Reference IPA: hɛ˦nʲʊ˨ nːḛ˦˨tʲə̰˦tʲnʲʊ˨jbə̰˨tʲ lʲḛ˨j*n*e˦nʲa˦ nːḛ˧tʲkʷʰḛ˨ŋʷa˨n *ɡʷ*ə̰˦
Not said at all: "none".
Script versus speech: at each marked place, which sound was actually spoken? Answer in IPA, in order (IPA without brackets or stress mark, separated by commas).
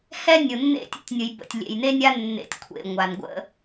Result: n, ɡʷ